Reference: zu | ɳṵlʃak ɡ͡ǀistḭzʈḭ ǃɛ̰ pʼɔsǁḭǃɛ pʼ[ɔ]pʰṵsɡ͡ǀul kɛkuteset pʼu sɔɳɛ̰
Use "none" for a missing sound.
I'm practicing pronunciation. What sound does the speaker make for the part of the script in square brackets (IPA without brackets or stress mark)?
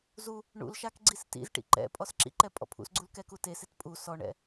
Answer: ɔ̰